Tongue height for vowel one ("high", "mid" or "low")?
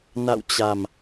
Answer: low